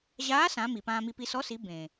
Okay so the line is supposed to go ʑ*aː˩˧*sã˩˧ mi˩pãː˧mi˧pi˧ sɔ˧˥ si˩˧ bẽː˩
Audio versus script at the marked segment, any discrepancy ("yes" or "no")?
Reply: yes